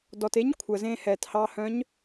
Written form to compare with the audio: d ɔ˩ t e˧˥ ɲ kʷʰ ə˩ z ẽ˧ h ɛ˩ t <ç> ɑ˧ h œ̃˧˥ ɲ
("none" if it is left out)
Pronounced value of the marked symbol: h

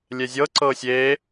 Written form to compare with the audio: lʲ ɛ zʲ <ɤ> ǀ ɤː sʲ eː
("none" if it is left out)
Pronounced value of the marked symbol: ɤ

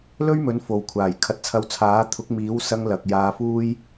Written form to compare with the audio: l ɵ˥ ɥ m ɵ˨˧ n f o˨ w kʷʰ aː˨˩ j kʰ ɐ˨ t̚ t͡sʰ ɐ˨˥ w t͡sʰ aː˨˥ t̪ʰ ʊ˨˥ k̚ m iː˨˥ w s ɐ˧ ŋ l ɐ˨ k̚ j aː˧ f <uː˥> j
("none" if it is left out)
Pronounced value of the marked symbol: uː˥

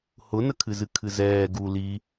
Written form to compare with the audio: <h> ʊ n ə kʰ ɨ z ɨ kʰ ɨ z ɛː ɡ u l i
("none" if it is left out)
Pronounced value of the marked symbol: h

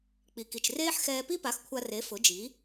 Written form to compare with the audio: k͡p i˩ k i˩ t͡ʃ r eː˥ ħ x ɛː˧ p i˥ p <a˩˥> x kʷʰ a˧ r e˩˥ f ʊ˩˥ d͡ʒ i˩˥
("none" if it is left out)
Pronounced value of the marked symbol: a˩˥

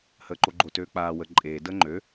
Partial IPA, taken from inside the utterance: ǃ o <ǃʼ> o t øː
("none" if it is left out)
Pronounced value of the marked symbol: ɡ͡ǃ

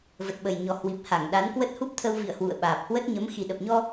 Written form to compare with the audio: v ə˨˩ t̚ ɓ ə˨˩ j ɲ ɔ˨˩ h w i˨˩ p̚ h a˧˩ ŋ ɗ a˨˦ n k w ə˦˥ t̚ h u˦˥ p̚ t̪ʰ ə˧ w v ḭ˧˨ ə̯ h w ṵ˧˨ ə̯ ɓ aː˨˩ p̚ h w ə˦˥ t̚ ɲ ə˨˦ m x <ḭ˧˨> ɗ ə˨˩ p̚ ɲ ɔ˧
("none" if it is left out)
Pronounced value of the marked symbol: i˨˩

